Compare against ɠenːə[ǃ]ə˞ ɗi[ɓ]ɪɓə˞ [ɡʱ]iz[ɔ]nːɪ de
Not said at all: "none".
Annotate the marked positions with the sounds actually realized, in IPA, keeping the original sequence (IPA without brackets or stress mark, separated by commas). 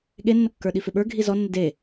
kː, f, ɡʱ, ɔ